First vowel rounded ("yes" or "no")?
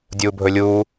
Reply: yes